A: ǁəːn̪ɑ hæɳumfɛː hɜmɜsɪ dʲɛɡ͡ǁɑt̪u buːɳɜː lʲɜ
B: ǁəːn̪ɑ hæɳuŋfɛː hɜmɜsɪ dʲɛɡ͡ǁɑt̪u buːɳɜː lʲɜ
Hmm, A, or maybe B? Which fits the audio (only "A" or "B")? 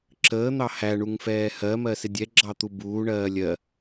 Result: B